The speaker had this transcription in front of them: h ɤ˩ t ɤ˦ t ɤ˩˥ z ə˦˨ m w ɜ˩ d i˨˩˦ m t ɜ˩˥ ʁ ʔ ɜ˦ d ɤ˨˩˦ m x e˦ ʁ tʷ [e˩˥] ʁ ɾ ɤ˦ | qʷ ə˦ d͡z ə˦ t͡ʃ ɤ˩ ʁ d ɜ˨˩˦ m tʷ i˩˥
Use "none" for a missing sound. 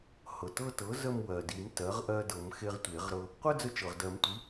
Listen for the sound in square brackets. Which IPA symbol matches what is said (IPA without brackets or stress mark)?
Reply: e˨˩˦